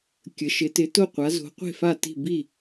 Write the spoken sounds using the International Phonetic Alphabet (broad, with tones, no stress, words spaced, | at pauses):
kʲə˩˧ʃɪ˩˧tɪ˩˧ to˥˩ qʷa˩˧zo̤˩˧ qʷe̤˥˩fa˥˩ti̤˥˩ bi˥˩